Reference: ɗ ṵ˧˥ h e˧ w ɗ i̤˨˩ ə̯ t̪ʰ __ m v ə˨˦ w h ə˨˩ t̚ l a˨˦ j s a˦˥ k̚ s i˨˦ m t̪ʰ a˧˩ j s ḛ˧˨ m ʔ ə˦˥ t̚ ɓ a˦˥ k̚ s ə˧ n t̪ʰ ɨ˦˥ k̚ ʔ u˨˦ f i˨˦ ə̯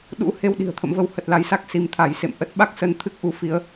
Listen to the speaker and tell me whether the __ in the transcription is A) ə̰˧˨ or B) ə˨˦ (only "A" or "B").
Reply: A